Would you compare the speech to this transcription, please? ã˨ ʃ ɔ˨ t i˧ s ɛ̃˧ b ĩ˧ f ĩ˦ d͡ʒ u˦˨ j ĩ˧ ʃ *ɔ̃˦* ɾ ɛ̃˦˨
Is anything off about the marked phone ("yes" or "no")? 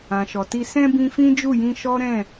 yes